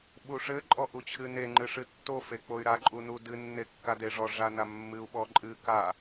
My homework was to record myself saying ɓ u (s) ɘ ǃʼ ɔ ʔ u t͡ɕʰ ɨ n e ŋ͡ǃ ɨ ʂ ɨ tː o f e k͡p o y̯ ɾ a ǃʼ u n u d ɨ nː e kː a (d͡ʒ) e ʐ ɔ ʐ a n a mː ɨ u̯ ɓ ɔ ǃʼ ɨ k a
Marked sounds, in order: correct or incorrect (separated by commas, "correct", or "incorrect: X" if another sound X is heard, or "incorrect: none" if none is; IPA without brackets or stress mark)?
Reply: incorrect: ʂ, incorrect: d